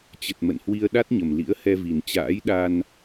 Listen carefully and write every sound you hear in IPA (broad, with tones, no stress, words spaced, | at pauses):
t͡ɕə˨˩t̚ mə̰˧˨nhwi˧ə̯ ɗa˦˥t̚ɲə˨˩m lḭ˧˥ə̯hɛ˧ vi˨˩nt͡ɕa̰ː˧˥j ɗa˧n